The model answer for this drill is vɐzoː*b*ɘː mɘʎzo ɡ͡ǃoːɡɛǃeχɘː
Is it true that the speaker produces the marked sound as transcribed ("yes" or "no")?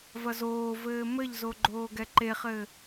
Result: no